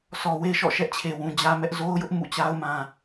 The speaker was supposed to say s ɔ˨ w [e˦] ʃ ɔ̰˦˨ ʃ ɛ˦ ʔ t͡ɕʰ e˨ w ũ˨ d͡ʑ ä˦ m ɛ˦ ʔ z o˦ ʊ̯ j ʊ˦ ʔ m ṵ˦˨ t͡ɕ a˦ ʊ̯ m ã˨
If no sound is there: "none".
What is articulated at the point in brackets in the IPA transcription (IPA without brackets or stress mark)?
e˦